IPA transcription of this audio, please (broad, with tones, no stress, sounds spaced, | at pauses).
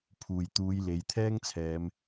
pʰ uː˨˩ j t̪ uː˨˧ j l e˨˧ j t̪ʰ ɛː˥ ŋ t͡sʰ ɛː˨˧ m